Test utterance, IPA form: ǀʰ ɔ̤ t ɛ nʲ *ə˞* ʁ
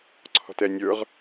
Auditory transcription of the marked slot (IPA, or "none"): ə˞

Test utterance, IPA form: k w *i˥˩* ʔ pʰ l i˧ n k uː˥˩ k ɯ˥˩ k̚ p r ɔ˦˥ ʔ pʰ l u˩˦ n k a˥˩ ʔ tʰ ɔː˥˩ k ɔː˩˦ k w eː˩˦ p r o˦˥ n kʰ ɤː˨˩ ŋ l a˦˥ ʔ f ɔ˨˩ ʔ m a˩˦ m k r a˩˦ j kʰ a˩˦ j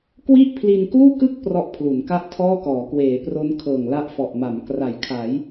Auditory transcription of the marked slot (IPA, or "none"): i˥˩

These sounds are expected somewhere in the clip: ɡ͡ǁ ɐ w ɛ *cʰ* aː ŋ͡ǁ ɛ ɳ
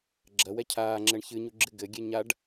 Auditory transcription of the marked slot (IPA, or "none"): cʰ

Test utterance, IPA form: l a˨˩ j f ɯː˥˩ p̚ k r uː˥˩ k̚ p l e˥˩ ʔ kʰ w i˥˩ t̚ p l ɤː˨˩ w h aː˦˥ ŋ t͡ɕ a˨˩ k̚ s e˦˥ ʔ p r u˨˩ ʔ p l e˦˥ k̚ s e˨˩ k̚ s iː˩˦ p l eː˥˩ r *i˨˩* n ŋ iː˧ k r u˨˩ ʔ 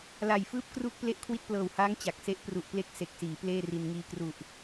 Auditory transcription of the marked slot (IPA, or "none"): i˧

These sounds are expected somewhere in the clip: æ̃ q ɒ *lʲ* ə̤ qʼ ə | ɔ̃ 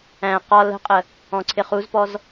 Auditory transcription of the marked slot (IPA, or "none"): l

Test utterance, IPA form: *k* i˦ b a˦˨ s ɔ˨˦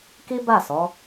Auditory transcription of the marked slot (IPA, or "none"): k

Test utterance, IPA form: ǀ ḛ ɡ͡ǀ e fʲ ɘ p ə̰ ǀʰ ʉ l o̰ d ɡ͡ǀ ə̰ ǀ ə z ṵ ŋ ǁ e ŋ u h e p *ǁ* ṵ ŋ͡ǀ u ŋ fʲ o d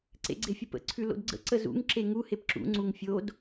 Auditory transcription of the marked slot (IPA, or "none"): ǁ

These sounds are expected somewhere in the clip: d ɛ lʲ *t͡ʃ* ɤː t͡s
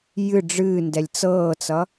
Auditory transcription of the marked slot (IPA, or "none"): t͡s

